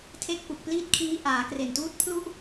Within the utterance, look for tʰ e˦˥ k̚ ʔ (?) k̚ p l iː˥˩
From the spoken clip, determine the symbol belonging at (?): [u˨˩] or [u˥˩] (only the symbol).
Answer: u˨˩